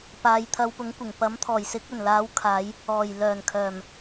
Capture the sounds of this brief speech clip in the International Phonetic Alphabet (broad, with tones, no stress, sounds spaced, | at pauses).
p aː˨ j t̪ʰ ɐ˧ w p ʊ˨˥ ŋ kʷ ɪ˨˩ ŋ p ɐ˨˥ m t̪ʰ ɔː˨˩ j s ɪ˨˥ k̚ ɵ˨˩ n l aː˨˥ w kʰ aː˨˧ j | ɔː˨˩ j l œː˨˩ n kʰ œː˨˩ m